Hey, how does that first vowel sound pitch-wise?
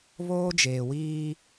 high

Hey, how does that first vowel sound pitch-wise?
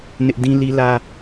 high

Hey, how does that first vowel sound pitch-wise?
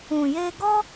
low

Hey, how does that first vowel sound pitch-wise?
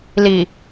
low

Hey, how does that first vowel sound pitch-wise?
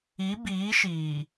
rising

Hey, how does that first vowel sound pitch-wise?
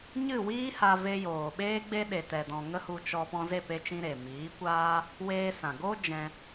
falling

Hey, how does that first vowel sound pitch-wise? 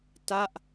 falling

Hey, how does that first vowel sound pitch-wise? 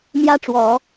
high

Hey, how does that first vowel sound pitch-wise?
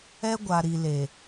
high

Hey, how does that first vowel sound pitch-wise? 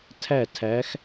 falling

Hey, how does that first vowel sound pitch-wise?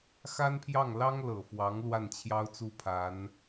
high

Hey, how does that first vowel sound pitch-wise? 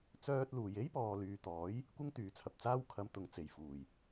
high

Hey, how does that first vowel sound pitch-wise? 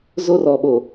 high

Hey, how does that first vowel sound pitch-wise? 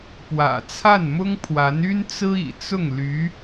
low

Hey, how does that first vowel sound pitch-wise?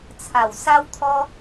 low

